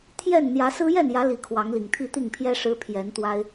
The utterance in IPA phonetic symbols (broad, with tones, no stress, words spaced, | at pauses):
t̪ʰjɛ˥˨n n̪jä˨˦sɹ̩˦ jɛ˥˨njä˨˦ li˨˦kʰwɑ˨˦ŋli˨˩ŋ t̪ʰi˥˨t̪i˥˨ŋpʰjɛ˦ ʂɻ̩˦pʰjɛ˨˦n t̪wa˦ɪ̯